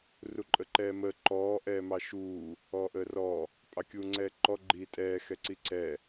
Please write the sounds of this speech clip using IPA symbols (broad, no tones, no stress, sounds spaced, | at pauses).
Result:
r u ǃʼ ə ǃ ɛː m əː ǃ ɔː ʔ ɛː m ɑ ʃ uː | ɔː ʔ əː r ɔ | pʼ ɑ kʲ uː ŋ͡ǀ ɛː ǃ ɔ ɡ͡ǃ iː tʼ ɛː x ɛ ǀ i ǀ ɛ